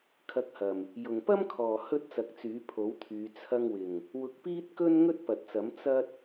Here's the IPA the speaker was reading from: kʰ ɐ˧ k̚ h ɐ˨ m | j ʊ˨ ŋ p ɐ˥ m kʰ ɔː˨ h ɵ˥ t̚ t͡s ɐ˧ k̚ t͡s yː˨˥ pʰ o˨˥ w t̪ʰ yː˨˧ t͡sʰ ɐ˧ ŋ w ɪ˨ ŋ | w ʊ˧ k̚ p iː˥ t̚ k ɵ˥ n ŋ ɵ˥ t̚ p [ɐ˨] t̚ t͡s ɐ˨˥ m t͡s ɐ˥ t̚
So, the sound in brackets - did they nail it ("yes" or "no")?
yes